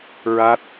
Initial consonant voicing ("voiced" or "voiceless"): voiced